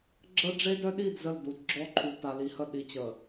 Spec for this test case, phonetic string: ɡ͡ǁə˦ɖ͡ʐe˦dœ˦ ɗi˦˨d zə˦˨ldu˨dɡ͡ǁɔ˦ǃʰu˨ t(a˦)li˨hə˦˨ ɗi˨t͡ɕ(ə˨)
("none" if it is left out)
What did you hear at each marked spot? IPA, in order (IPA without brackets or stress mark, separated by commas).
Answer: a˨, ə˨